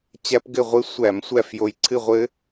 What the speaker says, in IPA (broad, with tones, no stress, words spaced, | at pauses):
t͡ɕæ˦˥pɡɘ˥˨ʁʷɨ˦˥ sʷæ˧˩˧m sʷæ˥˨fjo˧jǀʰɨ˥˨ʁʷɘ˦˥